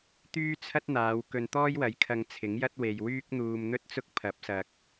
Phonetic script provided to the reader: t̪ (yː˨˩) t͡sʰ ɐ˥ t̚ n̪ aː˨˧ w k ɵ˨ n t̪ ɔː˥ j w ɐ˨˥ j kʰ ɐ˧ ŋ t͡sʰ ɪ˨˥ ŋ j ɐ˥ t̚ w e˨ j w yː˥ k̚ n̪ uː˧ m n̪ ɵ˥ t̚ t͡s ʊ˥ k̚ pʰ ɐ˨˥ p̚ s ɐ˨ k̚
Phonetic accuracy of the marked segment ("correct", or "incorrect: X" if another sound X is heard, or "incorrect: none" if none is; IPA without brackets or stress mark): incorrect: yː˥